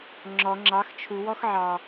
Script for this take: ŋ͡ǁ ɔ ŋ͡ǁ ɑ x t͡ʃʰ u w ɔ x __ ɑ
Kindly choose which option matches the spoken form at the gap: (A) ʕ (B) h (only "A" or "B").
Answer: A